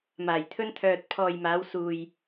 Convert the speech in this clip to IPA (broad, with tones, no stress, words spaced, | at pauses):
maː˨˩jt̪ʰɵ˧nt̪ʰœː˨t̚ pʰɔː˨jmaː˨˧w suː˨j